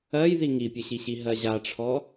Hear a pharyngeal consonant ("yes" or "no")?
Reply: no